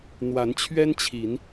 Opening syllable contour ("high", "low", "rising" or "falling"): rising